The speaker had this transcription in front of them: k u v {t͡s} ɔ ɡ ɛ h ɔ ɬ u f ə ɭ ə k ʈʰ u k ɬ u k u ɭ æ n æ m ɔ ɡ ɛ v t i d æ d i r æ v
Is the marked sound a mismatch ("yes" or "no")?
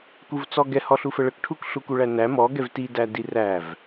no